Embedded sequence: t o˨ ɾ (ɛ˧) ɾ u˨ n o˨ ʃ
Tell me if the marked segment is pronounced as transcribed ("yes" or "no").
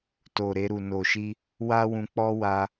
no